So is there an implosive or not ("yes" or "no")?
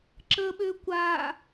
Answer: yes